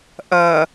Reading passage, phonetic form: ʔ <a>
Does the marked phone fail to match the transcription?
yes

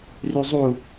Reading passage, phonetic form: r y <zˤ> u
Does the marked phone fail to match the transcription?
no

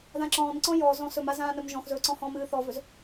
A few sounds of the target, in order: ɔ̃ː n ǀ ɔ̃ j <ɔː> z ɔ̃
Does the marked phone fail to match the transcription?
no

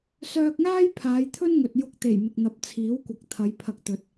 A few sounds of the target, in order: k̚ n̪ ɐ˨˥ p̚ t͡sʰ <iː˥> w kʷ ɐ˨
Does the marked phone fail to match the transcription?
yes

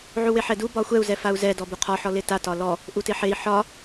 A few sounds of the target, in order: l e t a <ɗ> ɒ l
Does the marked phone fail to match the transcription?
yes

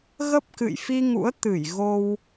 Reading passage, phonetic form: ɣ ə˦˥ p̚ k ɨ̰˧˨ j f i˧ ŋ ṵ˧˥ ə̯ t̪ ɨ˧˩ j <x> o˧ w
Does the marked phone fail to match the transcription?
yes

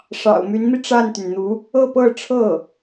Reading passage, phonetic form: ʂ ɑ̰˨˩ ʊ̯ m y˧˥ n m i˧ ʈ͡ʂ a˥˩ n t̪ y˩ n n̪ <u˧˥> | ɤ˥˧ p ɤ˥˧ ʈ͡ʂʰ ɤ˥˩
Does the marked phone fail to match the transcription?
no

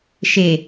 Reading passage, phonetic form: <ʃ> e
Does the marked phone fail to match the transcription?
no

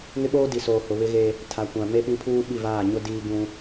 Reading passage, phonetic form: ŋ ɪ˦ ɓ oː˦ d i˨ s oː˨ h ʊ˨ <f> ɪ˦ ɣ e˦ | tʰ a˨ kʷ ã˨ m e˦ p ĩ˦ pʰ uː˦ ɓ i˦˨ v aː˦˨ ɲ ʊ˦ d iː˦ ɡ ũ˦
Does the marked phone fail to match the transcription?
yes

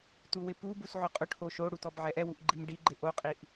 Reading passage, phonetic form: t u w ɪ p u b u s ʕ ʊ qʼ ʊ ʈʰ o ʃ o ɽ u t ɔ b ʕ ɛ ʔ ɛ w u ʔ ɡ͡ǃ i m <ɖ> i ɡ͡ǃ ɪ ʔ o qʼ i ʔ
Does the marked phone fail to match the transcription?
no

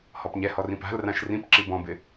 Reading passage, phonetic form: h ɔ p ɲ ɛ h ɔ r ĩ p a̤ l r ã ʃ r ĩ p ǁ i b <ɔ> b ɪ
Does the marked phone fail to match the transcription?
yes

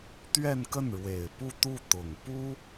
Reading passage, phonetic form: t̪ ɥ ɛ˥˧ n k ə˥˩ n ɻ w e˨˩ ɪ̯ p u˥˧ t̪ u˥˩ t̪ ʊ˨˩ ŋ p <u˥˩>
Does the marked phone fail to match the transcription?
yes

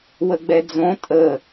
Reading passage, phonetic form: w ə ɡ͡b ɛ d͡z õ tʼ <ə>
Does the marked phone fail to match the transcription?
no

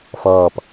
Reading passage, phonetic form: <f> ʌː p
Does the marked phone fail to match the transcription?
no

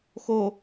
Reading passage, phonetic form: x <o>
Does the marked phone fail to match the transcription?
no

